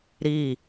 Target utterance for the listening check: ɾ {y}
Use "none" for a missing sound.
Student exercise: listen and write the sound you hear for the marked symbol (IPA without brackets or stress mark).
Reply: i